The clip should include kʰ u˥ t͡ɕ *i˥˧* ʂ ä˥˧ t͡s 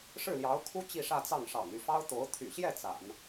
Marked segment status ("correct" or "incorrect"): correct